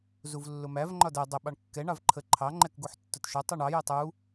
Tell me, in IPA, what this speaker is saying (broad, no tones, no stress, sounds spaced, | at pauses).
z u v lː ʊ m æ v ŋ͡ǃ ɒ d ɜ dˤ ə ɓ ɑ ɳ kː ɛ ɳ ɑ v ǃʰ ə ǃʰ ɑ ŋ͡ǃ ɛ k ɡ u ħ tː ʊ t ʃ ɒ tˤ ɜ ɳ ɑ j ɛ tˤ u